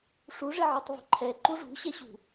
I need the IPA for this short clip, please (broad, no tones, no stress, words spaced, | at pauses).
ʂuʐɪ ʕitˤvṳǃʰɛ ǃuʐṳɕɛɕṳ